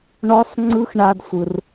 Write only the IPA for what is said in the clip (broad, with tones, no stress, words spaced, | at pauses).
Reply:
ɳɔ˧˥sˤŋ͡ǀɯ˧˥x ɳa˧dsʷɯ˩r